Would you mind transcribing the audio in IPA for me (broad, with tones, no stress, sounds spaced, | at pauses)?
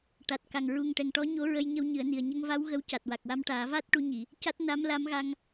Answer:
ʈ a˨˩ t̚ k a˨˩ ŋ ɹ u˨˩ ŋ ʈ ɛ˨˩ ŋ ʈ ɔ˧˥ ɲ o˧˥ ɹ ə˧ j ɲ ə˧ w ɲ ɨ˨˩˦ ə̯ n i˨˩ ə̯ ɲ ə˧ ŋ v a˧˥ w ɣ ə˧˥ w c a˨˩ t̚ w a˨˩ k̚ w a˧ m ʈ aː˨˩˦ v aː˦˥ t̚ ʈ u˧˥ ɲ i˨˩˨ | c a˦˥ t̚ n a˧˥ m l a˧˥ m ɣ a˧ ŋ